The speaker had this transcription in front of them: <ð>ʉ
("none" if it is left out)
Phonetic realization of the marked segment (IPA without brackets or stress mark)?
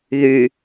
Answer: ð